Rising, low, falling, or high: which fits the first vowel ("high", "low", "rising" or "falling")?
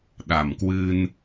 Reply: low